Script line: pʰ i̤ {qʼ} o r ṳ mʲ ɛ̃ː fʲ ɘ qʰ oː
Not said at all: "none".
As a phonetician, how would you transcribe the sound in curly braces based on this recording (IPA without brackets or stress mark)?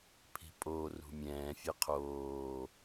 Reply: pʼ